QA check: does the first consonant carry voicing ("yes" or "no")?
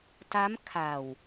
no